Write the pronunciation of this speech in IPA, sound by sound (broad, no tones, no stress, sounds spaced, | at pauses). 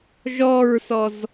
ʒ ɔ ɹ s ɔ z